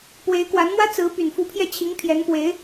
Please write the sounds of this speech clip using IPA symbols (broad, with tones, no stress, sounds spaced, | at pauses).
p w e˧˥ ɪ̯ k w a˧˥ n m w ä˥ t͡s ɹ̩˧˥ p y˨˩ n f u˧˥ pʰ j ɛ˥˩ t͡ɕʰ i˧˥ ŋ pʰ j ɛ˧˥ n p w e˧˥ ɪ̯